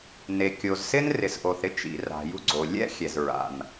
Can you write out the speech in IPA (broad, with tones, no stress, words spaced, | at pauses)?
ne˩kʲo˩zsɪ˥n rɪ˩sʔo˩θɾɪ˥t͡ʃḭ˩ ra̤˩jṳ˥ɡ͡ǀo˩ lʲɛ̰˥xʲɛ˩z ɹa̰˩n